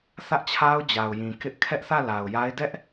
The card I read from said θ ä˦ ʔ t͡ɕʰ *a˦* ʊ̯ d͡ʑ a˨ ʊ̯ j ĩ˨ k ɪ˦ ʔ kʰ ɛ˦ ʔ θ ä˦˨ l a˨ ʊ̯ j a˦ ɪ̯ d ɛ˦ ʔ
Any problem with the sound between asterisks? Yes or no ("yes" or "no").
no